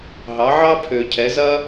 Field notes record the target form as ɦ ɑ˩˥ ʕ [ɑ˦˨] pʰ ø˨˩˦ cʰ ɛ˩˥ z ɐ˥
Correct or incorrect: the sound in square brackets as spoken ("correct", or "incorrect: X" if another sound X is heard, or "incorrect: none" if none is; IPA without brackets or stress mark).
incorrect: ɑ˥